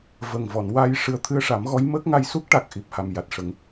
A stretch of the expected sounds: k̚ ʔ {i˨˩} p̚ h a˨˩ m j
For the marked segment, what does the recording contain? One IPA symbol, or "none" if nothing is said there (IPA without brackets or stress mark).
i˨˩